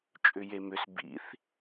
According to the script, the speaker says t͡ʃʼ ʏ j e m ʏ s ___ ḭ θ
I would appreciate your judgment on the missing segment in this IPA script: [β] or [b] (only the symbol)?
b